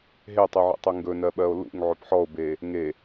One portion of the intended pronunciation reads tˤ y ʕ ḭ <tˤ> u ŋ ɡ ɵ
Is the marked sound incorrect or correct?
correct